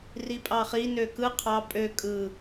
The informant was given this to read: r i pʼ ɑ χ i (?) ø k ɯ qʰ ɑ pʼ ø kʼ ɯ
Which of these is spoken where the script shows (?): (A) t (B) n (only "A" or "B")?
B